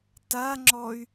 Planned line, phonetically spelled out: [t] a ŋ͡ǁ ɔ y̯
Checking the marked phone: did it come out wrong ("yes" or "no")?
no